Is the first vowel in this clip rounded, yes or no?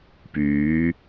yes